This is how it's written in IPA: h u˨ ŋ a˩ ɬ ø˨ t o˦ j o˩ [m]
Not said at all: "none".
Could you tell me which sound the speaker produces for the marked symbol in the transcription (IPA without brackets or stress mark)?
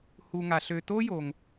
ŋ